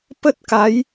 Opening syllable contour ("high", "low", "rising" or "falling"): high